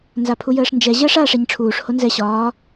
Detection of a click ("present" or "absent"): absent